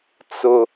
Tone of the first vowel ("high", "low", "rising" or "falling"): high